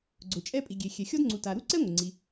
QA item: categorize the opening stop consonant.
click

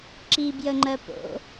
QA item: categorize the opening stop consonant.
click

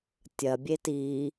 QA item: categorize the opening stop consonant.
plain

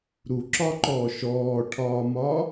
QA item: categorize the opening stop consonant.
click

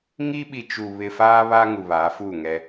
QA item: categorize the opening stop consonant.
implosive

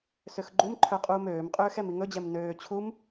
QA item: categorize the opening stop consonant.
click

